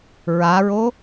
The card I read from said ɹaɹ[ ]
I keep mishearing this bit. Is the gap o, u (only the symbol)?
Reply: o